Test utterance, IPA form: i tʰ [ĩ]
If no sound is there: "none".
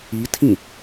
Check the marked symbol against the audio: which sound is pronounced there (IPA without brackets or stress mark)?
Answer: ĩ